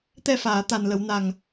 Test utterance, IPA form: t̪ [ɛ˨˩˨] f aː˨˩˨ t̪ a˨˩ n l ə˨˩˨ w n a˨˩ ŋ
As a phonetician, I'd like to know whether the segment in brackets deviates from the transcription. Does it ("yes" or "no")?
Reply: yes